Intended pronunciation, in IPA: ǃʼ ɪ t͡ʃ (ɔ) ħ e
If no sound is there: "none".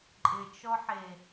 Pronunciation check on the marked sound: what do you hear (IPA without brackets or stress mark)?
ɔ